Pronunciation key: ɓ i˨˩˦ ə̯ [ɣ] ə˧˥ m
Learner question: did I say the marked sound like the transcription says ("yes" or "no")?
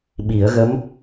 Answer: yes